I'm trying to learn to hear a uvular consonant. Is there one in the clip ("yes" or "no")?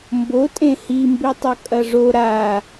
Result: no